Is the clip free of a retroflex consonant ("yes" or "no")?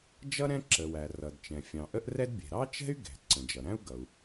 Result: yes